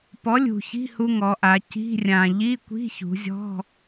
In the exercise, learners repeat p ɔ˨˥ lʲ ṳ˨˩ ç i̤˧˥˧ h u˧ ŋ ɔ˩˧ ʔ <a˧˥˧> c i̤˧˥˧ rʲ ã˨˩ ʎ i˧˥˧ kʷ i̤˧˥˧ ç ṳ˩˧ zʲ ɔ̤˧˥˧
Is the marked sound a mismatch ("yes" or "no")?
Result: yes